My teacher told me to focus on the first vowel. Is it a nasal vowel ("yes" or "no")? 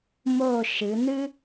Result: no